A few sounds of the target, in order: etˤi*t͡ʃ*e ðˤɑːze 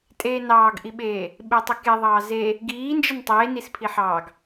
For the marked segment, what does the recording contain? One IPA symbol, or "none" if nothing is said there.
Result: k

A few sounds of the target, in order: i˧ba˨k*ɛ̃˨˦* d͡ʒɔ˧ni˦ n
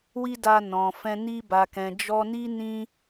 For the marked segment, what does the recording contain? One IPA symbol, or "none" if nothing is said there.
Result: ɛ̃˨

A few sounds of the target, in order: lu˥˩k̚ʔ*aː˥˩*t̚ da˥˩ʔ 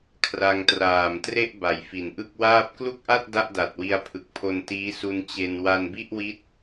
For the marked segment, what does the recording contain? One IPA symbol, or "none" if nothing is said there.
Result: a˥˩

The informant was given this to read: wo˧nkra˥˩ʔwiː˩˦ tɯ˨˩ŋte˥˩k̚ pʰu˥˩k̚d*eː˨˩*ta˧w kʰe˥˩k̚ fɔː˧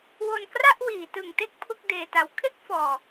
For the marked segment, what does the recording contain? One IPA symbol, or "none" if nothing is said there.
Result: eː˧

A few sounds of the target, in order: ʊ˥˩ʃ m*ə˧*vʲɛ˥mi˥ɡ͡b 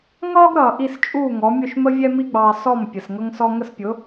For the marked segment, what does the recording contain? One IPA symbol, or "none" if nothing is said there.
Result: ə˥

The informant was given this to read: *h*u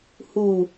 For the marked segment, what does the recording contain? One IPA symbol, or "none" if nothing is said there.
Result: h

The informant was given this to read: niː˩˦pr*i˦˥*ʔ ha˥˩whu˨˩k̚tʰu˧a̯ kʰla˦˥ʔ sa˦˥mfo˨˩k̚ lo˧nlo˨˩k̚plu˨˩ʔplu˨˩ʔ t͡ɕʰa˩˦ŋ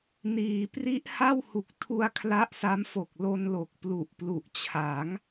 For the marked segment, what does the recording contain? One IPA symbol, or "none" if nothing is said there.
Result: i˦˥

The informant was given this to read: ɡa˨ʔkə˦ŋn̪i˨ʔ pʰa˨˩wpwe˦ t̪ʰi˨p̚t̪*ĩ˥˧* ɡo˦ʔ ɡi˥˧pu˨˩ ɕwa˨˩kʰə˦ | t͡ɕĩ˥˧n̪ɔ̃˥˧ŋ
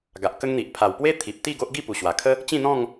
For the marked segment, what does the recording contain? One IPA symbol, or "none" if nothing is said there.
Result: i˥˧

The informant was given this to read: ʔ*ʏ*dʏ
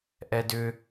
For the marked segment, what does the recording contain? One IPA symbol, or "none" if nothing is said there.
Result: ɛ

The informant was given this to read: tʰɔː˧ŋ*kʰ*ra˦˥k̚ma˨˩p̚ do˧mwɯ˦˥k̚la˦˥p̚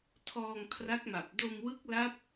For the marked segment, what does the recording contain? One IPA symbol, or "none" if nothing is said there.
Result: kʰ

